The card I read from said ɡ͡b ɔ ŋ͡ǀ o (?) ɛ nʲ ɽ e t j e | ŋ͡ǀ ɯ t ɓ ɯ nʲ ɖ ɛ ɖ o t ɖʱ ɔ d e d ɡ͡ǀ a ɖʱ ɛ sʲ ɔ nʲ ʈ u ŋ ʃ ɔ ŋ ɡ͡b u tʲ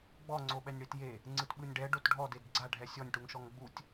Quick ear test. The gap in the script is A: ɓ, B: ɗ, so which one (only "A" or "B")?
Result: A